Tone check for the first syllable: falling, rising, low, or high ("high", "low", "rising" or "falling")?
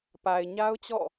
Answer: low